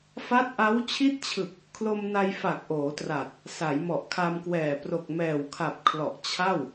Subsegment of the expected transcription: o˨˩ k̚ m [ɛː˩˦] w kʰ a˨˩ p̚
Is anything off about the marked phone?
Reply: yes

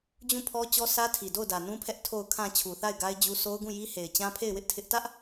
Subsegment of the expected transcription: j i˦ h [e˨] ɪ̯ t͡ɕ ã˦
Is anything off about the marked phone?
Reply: no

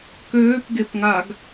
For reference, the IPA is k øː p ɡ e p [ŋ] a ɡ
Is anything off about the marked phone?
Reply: no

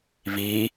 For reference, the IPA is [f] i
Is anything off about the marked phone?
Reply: yes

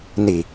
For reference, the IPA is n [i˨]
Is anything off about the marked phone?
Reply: no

